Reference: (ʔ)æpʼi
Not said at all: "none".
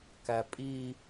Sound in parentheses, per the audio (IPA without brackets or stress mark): k